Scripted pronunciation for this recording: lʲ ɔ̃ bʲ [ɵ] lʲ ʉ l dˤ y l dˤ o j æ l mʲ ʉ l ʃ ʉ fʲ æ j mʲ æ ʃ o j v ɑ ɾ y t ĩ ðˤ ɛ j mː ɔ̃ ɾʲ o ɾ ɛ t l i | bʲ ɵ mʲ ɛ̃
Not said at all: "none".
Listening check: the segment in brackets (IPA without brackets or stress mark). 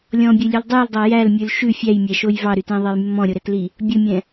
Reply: ɵ